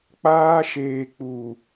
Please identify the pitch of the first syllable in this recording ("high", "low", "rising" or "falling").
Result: high